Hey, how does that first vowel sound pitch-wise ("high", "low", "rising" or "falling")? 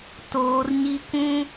high